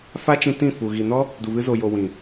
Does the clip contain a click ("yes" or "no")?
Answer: no